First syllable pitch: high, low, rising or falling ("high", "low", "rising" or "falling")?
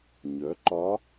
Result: rising